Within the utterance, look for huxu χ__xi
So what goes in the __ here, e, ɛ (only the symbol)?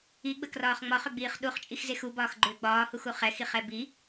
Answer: ɛ